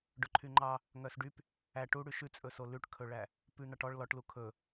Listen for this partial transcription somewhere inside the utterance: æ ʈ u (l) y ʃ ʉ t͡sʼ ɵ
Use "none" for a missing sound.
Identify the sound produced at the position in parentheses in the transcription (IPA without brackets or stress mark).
ɽ